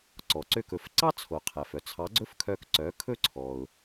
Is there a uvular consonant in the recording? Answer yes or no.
yes